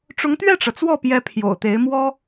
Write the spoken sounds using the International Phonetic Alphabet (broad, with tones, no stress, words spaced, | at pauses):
ʈ͡ʂʊ˧˥ŋt̪ɥɛ˥˩ʈ͡ʂɤ˩t͡swɔ˥˩ pjɛ˧˥pʰjo̰˨˩ʊ̯t̪e˧˥ɪ̯ mwɔ˥